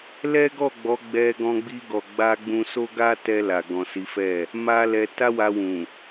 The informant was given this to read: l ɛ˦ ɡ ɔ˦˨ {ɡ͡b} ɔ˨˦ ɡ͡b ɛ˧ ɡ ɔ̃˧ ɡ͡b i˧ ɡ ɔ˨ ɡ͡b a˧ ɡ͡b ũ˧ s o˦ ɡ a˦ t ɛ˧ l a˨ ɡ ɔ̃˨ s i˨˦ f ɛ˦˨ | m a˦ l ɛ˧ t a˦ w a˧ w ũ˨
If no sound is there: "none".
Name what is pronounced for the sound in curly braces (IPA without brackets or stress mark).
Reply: ɡ͡b